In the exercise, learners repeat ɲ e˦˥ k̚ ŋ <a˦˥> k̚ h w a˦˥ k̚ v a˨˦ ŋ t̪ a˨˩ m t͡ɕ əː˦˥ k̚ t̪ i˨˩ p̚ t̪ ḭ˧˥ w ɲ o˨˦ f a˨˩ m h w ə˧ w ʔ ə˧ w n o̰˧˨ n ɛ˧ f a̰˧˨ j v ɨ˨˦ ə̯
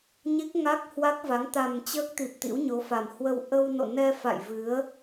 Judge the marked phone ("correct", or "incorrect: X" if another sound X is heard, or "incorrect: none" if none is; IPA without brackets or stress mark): correct